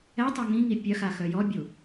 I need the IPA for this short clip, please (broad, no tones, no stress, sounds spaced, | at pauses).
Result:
ɛ tˤ œ ŋ ĩ ŋ i pʲ œ x a x œ j ɔ bʲ u